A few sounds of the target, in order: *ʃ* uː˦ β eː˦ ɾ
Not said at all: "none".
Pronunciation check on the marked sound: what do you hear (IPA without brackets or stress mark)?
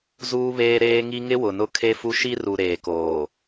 z